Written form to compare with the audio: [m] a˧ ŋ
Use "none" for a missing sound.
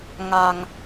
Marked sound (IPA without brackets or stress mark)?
ŋ